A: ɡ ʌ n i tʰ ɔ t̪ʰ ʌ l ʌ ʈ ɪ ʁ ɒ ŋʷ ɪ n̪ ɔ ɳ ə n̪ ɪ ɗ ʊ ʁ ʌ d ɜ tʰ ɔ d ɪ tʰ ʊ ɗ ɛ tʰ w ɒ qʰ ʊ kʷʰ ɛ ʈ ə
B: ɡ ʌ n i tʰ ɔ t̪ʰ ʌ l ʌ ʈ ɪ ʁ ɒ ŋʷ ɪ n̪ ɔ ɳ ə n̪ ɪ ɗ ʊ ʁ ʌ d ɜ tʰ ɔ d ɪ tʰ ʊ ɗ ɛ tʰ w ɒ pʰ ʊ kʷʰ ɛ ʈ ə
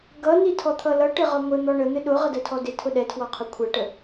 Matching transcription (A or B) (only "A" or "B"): A